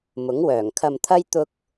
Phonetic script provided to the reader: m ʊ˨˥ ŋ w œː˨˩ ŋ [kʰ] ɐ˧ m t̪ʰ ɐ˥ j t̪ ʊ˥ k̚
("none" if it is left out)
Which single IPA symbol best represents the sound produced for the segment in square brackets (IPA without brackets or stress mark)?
kʰ